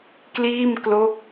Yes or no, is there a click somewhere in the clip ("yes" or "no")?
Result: no